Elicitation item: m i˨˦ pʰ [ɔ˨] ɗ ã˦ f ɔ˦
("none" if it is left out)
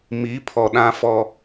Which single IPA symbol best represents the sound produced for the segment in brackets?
ɔ˨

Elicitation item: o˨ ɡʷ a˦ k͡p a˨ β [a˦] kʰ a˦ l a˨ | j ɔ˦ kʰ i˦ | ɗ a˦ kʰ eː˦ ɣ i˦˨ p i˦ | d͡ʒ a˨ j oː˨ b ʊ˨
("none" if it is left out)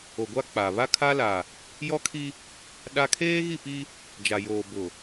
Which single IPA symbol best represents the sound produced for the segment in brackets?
a˦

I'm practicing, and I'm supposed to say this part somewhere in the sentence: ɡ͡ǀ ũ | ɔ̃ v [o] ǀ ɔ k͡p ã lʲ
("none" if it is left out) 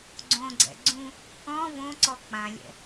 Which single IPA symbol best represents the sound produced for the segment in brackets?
õ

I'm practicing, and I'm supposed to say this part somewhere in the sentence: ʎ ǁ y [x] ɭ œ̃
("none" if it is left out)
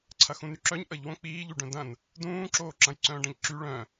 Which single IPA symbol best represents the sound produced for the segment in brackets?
none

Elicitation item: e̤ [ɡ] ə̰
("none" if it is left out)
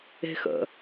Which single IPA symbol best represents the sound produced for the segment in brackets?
x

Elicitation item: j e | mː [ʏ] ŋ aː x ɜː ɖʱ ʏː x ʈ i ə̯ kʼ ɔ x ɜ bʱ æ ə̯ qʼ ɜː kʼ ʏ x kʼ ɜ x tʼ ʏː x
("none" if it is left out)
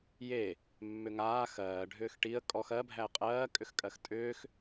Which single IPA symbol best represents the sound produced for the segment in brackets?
ʏ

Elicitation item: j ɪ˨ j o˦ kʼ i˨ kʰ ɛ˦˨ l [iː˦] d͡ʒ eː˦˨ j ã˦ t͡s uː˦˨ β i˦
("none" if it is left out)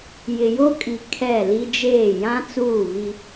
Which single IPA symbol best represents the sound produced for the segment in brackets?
i˦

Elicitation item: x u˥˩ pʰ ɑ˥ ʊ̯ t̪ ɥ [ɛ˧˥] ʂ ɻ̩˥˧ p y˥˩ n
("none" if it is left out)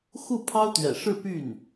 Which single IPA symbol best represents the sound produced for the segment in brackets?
ɛ̰˨˩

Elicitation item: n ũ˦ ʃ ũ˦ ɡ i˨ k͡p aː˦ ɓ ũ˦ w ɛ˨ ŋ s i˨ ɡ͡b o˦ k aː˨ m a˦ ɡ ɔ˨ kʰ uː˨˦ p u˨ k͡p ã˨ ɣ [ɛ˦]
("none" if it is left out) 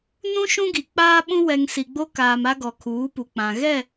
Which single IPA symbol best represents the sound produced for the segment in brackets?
ɛ˦˨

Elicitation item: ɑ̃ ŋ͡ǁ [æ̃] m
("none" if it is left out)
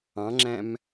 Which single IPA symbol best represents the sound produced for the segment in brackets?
æ̃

